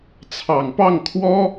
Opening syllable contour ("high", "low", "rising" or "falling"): low